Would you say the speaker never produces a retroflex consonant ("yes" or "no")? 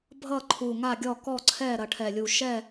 no